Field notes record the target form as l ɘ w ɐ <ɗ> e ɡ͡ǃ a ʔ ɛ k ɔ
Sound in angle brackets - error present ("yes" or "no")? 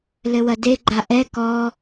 yes